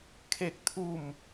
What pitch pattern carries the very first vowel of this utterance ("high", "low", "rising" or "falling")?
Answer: falling